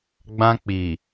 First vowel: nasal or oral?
nasal